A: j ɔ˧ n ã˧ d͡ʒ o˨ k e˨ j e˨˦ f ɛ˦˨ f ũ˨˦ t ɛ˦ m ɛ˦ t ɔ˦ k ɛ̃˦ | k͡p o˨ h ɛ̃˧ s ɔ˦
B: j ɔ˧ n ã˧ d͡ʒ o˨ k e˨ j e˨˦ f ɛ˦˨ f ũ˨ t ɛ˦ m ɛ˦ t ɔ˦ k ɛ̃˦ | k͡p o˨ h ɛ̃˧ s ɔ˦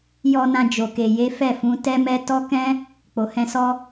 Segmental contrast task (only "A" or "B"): A